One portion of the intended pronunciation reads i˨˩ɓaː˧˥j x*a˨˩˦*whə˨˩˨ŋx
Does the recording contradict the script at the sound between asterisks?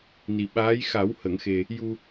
no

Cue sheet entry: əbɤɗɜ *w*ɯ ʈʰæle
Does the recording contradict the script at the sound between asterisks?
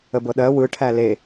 no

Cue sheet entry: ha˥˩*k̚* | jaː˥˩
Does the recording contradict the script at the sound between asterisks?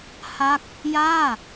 no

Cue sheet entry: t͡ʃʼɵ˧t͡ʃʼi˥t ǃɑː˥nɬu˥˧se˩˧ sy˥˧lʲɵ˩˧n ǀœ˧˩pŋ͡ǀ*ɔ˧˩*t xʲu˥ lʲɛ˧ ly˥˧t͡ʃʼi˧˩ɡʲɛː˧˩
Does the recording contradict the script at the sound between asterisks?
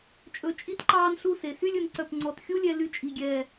no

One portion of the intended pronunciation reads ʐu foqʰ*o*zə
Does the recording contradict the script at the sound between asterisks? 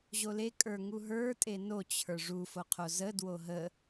no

